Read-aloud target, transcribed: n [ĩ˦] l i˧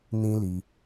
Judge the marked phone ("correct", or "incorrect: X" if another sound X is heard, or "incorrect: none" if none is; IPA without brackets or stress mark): correct